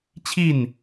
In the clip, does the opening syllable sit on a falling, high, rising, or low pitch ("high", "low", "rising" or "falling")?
falling